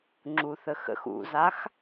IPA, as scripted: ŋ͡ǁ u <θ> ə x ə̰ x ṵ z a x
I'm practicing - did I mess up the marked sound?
no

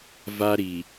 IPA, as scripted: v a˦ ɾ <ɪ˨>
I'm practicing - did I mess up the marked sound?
yes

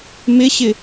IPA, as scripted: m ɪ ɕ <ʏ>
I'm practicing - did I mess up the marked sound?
yes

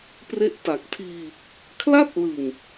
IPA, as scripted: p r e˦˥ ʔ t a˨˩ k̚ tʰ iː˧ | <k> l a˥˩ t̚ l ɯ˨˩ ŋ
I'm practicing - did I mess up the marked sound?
yes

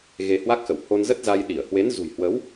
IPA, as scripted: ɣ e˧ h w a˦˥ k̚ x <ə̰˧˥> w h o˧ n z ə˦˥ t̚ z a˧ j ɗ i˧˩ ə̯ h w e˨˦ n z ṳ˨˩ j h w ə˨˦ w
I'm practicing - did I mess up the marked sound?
yes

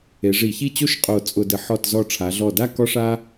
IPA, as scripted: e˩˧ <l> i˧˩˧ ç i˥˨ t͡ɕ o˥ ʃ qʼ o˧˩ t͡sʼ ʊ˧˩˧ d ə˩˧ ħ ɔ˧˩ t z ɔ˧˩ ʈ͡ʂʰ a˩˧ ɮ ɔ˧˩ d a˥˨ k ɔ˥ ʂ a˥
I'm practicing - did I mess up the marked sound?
yes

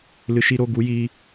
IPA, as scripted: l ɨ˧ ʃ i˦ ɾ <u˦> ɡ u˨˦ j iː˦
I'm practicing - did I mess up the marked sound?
yes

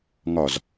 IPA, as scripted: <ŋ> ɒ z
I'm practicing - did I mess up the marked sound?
no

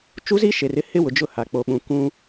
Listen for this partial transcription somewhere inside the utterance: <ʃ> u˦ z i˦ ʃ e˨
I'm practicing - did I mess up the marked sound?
yes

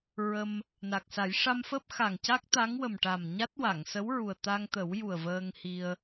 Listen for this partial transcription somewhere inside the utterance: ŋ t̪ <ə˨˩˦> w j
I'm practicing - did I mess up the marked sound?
no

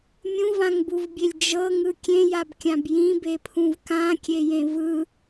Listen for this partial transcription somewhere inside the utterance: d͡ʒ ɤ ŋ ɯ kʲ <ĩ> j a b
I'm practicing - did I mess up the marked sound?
yes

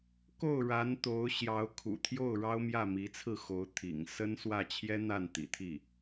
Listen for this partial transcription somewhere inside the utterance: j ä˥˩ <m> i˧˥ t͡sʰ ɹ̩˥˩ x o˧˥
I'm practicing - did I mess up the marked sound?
no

